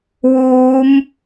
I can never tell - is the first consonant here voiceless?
no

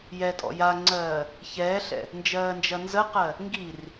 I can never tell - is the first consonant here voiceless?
no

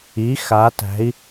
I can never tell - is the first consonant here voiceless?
yes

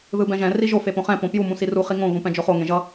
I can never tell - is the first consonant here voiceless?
no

